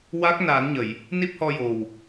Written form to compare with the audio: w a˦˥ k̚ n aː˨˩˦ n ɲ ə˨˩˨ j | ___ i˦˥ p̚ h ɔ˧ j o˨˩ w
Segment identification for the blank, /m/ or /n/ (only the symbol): n